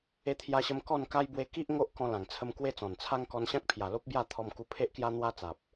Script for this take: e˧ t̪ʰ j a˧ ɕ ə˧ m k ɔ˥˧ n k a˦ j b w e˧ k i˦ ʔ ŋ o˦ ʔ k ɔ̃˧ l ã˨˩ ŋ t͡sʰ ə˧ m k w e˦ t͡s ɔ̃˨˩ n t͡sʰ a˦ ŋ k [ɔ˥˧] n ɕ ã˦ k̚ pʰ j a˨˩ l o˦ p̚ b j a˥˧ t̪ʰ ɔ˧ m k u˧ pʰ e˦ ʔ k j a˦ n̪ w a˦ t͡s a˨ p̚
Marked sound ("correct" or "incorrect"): incorrect